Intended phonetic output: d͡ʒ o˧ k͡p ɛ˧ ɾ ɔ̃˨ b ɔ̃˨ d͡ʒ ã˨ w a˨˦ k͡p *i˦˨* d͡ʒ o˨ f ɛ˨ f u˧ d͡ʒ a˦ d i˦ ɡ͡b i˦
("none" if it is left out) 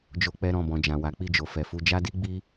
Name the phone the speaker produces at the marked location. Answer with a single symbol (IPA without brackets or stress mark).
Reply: i˦˨